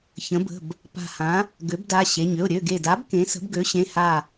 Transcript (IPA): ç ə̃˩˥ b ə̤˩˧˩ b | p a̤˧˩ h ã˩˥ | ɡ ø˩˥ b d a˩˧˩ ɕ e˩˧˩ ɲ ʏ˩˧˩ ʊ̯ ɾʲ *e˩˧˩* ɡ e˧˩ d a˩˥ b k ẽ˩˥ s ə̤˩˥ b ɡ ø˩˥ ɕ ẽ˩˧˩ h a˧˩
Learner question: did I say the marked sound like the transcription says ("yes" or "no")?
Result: no